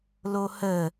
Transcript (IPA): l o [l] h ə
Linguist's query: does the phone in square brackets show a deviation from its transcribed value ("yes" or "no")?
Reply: yes